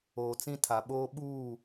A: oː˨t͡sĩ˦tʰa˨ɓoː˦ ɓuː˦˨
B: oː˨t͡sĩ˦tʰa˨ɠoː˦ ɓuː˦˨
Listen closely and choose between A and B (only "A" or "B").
A